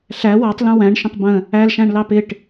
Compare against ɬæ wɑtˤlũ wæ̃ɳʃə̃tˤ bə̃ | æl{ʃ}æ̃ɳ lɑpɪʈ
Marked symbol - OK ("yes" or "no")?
yes